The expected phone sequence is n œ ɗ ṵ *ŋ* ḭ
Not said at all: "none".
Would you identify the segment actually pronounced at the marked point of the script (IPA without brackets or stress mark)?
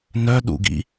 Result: ɡ